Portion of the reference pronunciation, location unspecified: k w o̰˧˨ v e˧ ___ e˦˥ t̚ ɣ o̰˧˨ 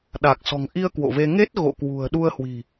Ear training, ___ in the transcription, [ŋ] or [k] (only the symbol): ŋ